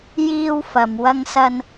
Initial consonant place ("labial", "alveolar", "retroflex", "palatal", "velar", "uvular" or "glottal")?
palatal